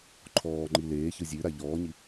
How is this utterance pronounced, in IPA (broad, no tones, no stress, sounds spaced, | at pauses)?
ǃʰ ɔː ŋ͡ǃ i l eː ç ɯ zʲ ʉ ɾ a ʎ ɔː ɲ i